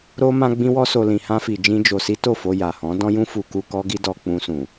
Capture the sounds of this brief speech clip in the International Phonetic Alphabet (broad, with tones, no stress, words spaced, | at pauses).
ɾo˦ mã˦ɡ͡bĩ˦wɔ˦ so˧ lĩ˧hã˦fi˧ d͡ʒĩ˦d͡ʒo˧si˦ to˦˨fo˧ ja˨hɔ̃˨˦ dɔ̃˦jũ˦fu˧ ku˧ kɔ˦ɡi˦dɔ˧ k͡pũ˧sũ˨